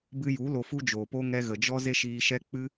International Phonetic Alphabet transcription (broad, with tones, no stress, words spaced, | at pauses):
bɨ˧ju˨˦ lo˧fu˦d͡ʒoː˨po˦ ŋɛ˧ɣə˨d͡ʒɔ˦ ze˦ʃiː˧ʃɛ˦ k͡pɨ˦